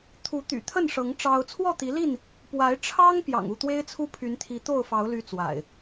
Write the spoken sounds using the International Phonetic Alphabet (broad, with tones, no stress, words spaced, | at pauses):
t̪ʰu˨˦t̪y̰˨˩t̪ʰə˥˨nʂɤ˨˦ŋ ʈ͡ʂɑ˦ʊ̯ t͡sʰwɔ˥˨t̪i˨˦li˥˨n | pwa˨˦ɪ̯ ʈ͡ʂʰɑ˦ŋ pjɑ̰˨˩ŋu˥˨t̪we˦ɪ̯t͡sʰu˦ pʰy˨˦nt̪ʰi˨˦t̪o˥˨ʊ̯fɑ˨˦ʊ̯ ly˦t͡swa̰˨˩ɪ̯